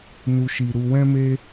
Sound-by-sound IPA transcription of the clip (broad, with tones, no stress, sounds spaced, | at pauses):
n u˨ ʃ i˨ ɾ u˧ w ɛ̃˦ m e˦